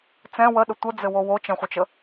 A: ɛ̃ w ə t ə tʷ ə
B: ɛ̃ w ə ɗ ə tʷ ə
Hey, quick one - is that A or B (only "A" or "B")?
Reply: B